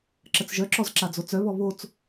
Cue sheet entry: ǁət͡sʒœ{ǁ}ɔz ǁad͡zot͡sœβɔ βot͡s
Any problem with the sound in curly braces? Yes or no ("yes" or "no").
no